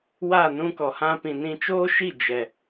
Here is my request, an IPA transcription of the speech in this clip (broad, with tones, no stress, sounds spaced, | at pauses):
w a˦˨ n ũ˧ k ɔ˨ h ã˧ p ĩ˨ n ĩ˧ t͡ʃ oː˦ ʃ i˦˨ d͡ʒ ɛ˨